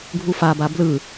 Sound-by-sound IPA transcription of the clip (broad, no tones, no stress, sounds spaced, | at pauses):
ɡʱ u f a b a b l ɯ